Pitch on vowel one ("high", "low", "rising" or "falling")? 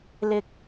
high